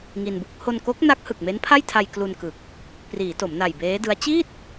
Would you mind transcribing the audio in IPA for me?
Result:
ŋ i˧ n b u˦˥ k̚ h o˧ n k o˦˥ k̚ n a˦˥ k̚ h ɯ˨˩ k̚ m e˦˥ n pʰ a˥˩ j tʰ a˧ j k l u˧ n k ɯ˨˩ k̚ | p r iː˩˦ t o˩˦ m n a˨˩ j b eː˦˥ d ɯ˦˥ a̯ t͡ɕ iː˥˩ t̚

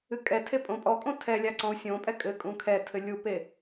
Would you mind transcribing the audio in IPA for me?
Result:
ɨ kʼ ɛ tʰ e pʼ õ pʼ ɔ kʼ õ tʰ ɛ lʲ a ǀ ɔ̃ u̯ sʲ õ pʼ ɛ kʼ ɘ kʼ ũ kʰ ɛ tʰ ɘ lʲ u p e

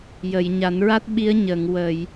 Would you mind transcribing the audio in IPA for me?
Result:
j ə˨˩˨ j ɲ a˨˩˦ n ɹ a˦˥ t̚ ɓ i˧˥ ə̯ ɲ ə˨˩˨ ŋ w ə˨˩˨ j

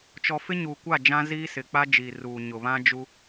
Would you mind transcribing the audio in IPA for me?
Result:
t͡ʃ ɔ˨ f ɪ˦ ɲ uː˨ kʷ a˦˨ d͡ʒ ã˦ z iː˦ s ɪ˨ k͡p a˦ d͡ʒ i˨ r uː˨ ɲ ʊ˨ β ã˦ d͡ʒ u˦

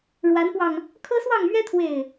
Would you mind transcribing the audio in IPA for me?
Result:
ɻ w a˨˦ n p w ɑ˧ ŋ | kʰ ɤ˦ s w ɑ˥˨ ŋ m ɥ ɛ˦ t̪ʰ w e˥˨ ɪ̯

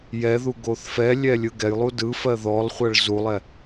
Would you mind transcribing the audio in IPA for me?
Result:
j ɛ ð u ɡ o θ f ɛ lʲ ɛ lʲ ɯ ɡ ɛ j lˠ u d ɯ f ɜ ð ɔ lˠ χʷ ɜ ɭ z u lˠ ɛ

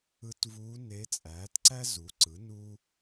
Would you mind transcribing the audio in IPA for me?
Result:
ɯ˧˥ t v uː˧˥ n e˧˥ t͡sʼ æː˩˥ t ǀ æ˥ z u˩˥ ǀ ɯ˩˥ n u˥

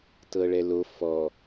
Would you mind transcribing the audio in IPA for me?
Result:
t ɤ ɭ ɛ l o f ɔ

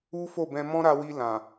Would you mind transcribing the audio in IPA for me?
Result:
u˦ f o˦˨ b ɛ̃˧ m ɔ̃˦ ɾ a˧ w i˧ l ã˨

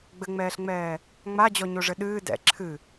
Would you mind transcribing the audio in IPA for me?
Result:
ɡ͡b ɘ ŋ͡m ɛː ɬ ŋ͡m ɛː | ŋ͡m a d͡ʑ ɔ ɲ o ʐ ɘ ɗ ɨː d ɛ̰ ǁʰ ɨ

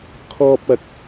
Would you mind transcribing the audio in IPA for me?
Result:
kʰ ɔː˥ p̚ ɐ˧ k̚

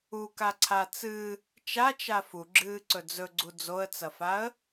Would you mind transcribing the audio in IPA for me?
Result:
u k a ǀʰ a t͡s ɨ | t͡ʃ a t͡ʃ a f u ɡ͡ǁ ɨː ǀ ɵ d͡z ɵ ɡ͡ǀ u d͡z o ə̯ t͡s ɐ f a ə̯

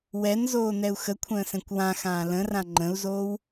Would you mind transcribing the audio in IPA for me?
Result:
w ɛ n z oː n ɛ u̯ x ə kʷʰ ə̃ː s ɛ̃ kʷ w ã x ãː l ə̃ r ã ŋ͡ǃ ə̃ u̯ z oː w

